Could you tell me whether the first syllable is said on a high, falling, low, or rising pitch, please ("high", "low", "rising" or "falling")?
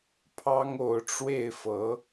high